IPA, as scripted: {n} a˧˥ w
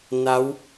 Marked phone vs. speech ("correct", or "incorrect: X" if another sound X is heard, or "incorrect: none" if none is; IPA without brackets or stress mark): correct